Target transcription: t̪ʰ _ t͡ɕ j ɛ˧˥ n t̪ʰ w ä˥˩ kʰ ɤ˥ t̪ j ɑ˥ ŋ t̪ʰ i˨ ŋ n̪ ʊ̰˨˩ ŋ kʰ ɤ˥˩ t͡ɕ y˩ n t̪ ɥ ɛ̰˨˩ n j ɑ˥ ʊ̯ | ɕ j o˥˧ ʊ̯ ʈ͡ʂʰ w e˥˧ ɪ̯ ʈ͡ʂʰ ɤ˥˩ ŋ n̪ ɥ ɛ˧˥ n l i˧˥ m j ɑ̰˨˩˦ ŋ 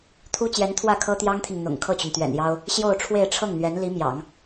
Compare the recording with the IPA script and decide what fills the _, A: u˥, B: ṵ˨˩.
A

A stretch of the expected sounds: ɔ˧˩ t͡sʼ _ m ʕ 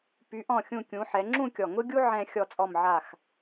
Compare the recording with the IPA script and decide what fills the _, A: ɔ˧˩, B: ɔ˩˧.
A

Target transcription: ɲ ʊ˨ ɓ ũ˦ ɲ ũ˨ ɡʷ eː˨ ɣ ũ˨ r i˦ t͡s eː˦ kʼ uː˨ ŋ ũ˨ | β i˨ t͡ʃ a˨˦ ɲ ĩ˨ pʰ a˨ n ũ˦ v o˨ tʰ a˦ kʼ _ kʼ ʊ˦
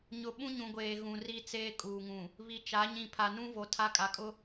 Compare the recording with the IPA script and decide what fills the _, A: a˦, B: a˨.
B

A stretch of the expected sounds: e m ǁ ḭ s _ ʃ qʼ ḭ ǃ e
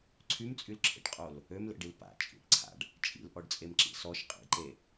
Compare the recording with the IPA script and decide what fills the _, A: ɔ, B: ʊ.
A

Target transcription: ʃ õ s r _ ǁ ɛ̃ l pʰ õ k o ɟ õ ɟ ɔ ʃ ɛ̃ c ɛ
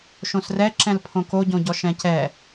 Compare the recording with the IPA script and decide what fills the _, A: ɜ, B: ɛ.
B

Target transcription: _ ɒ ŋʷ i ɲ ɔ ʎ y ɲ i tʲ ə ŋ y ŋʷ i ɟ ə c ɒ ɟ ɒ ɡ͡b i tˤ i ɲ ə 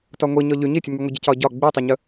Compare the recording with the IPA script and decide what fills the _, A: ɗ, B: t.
B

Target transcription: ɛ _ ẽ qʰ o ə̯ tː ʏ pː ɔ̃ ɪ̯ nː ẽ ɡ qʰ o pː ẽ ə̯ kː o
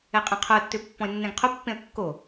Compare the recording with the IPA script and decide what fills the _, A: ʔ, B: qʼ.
B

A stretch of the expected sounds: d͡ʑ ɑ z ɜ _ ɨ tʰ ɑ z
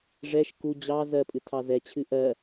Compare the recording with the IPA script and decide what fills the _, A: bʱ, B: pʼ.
B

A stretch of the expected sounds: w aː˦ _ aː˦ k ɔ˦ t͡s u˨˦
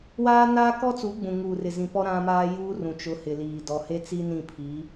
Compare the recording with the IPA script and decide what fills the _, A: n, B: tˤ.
A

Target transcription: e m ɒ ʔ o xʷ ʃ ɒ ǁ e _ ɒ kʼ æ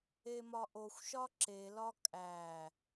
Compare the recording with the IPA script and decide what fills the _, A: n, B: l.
B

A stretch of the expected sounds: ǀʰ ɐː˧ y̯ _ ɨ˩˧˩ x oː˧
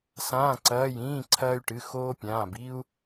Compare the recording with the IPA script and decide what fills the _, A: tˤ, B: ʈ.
B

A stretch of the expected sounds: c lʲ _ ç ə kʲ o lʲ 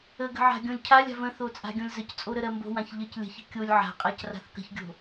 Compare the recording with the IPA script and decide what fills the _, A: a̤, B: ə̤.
B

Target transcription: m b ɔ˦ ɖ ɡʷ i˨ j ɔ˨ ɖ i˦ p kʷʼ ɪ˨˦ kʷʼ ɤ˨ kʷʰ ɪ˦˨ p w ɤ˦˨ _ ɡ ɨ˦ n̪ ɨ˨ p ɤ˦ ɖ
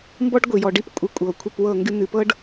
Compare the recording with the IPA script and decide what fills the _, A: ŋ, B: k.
A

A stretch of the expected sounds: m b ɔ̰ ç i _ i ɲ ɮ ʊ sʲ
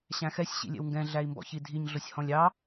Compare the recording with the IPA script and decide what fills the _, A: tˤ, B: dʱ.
B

